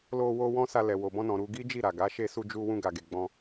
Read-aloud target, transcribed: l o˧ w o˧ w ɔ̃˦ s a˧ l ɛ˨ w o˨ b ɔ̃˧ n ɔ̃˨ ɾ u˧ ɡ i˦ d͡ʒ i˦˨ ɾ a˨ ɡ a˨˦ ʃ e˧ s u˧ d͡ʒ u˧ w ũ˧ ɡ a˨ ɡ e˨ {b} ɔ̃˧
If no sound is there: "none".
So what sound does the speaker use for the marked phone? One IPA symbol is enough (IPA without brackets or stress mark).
ɡ͡b